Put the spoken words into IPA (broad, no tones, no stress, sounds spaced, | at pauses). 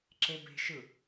ǁ e b e̤ ʃ ɯ